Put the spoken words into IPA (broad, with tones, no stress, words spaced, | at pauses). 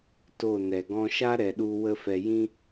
to˦˨ nɛ˨ɡɔ̃˧ ʃa˦ ɾɛ˧ɗu˦ wə˦fɛ˧ jĩ˦